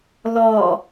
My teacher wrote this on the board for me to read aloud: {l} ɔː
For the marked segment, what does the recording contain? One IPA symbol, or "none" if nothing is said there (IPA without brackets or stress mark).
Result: l